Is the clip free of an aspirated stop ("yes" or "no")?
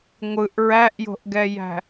yes